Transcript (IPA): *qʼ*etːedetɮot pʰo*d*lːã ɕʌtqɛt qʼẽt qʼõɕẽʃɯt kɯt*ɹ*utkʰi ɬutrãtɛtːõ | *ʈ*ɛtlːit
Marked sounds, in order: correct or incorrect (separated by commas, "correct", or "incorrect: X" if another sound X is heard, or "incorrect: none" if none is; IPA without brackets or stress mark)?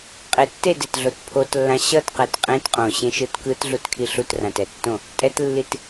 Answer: correct, incorrect: t, incorrect: ɮ, incorrect: tʼ